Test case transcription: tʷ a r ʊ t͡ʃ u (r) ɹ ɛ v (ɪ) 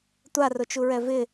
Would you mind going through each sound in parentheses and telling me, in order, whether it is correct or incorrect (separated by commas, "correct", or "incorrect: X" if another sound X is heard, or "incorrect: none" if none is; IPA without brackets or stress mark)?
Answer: incorrect: none, correct